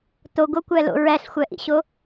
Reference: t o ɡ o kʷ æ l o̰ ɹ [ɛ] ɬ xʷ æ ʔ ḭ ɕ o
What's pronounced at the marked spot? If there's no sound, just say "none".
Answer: æ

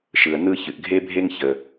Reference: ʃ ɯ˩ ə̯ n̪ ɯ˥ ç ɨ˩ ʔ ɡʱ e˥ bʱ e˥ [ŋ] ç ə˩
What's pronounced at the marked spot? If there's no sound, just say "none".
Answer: ŋ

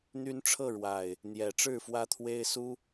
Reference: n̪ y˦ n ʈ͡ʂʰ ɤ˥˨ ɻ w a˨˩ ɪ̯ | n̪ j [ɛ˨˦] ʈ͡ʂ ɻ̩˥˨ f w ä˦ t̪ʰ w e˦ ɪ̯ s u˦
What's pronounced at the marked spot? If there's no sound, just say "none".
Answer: ɛ˨˦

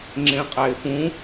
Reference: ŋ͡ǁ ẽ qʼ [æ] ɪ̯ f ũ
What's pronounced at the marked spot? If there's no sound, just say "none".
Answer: æ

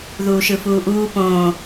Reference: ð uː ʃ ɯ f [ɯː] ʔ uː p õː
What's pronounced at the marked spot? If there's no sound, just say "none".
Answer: uː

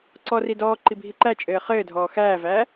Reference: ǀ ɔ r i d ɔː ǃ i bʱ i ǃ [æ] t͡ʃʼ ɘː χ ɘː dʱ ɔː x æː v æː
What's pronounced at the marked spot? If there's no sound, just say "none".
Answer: æ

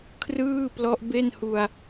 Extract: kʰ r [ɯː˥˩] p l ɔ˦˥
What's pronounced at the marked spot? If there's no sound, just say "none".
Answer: ɯː˥˩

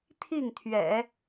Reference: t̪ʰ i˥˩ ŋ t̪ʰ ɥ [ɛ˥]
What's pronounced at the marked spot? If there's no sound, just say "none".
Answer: ɛ̰˨˩˦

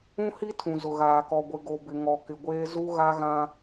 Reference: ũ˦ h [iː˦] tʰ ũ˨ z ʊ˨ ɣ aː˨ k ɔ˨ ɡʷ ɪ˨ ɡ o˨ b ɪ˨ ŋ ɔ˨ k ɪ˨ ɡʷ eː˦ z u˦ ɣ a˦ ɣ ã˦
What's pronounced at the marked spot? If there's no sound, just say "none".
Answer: i˦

